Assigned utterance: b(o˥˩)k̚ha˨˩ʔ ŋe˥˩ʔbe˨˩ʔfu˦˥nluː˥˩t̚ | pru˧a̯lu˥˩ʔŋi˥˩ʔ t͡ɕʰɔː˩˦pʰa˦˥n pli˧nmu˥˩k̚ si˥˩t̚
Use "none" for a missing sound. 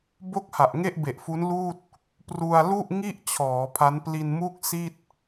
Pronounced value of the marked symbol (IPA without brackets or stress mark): o˥˩